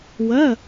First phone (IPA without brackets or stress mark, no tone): w